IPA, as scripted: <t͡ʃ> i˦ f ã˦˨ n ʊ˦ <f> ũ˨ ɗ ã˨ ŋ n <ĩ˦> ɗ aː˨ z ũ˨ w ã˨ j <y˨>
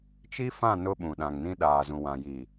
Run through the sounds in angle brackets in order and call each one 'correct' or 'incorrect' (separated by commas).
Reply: correct, incorrect, correct, incorrect